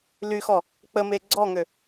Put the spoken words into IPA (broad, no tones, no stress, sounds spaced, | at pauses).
l y x ɔ | k͡p ə m e ɡ͡ǀ ɔ ŋ ø